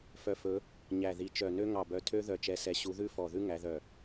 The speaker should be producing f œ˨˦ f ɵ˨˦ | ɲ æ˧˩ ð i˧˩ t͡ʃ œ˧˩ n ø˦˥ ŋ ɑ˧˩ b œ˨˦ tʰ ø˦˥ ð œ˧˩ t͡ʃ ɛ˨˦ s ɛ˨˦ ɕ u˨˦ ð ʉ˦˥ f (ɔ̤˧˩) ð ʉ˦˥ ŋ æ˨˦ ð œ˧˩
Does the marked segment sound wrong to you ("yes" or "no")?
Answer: yes